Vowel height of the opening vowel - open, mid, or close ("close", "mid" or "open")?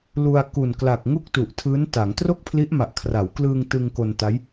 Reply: close